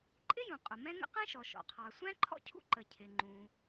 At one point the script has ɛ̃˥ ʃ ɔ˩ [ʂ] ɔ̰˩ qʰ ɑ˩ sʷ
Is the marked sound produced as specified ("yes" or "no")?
no